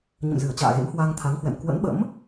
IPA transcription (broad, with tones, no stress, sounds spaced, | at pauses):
ɲ ə̰˧˨ m z ɨ˧˩ ə̯ t͡ɕ a̰ː˧˨ ɣ ḛ˧˥ m h w a˧ ŋ t̪ʰ a˨˦ ŋ h w ɛ̰˧˨ m k w ə̰˧˥ n ɓ ə̰˧˥ m